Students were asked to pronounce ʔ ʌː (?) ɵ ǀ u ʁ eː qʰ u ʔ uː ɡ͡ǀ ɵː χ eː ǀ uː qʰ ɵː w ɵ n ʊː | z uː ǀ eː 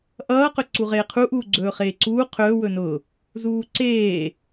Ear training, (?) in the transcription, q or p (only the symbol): q